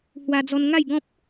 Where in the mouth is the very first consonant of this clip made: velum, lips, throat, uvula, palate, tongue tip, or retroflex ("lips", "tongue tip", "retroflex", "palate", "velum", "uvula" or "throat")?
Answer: throat